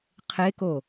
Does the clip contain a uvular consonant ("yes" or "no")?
yes